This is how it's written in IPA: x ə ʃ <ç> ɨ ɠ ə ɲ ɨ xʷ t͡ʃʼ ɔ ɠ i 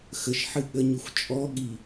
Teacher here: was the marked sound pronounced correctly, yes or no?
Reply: no